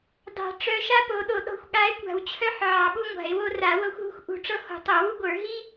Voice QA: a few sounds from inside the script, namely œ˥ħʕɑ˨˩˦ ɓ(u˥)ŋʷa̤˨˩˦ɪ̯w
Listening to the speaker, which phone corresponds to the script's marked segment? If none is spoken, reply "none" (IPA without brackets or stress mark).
u˥